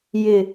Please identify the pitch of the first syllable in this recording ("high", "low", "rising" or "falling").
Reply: low